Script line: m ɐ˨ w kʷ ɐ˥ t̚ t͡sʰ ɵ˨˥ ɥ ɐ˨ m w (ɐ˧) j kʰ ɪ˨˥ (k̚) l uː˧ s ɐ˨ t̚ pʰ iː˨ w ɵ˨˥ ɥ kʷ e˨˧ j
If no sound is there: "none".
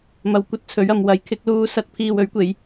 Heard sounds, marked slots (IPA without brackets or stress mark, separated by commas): ɐ˨˥, k̚